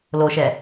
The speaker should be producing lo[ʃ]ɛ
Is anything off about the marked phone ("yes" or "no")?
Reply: no